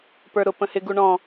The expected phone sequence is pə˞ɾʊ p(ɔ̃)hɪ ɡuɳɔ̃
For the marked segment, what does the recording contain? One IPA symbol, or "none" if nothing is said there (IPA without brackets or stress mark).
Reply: ə̃